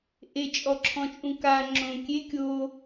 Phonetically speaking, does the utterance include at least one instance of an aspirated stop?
yes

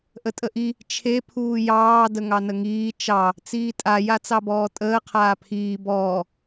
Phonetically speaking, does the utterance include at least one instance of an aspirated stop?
yes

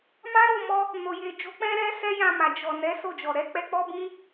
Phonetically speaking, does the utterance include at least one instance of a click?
no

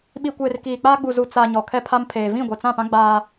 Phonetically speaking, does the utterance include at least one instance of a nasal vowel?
yes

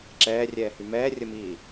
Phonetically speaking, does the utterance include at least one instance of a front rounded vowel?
yes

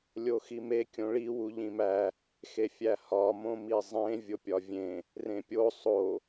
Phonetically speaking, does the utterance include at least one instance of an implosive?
no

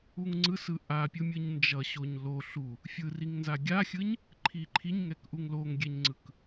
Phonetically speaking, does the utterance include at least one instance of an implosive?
no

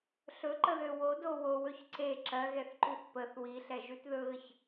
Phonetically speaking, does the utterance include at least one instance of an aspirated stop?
no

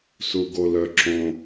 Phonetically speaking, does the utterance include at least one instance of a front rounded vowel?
yes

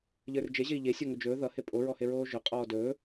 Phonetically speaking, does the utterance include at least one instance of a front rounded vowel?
no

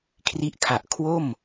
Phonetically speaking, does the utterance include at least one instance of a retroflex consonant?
no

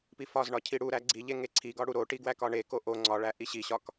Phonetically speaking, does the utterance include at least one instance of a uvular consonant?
no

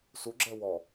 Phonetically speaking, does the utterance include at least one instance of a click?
yes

